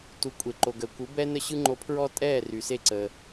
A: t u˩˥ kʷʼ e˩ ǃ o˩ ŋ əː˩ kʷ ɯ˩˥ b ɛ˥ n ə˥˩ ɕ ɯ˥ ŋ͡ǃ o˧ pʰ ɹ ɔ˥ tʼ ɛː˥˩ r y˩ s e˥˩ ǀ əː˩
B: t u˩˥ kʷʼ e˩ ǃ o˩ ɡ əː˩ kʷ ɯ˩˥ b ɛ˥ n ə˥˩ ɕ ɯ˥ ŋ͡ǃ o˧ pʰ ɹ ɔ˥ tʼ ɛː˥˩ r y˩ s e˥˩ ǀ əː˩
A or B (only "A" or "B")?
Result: B